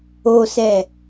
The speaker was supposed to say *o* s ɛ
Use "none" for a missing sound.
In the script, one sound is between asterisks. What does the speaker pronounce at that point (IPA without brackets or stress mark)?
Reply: o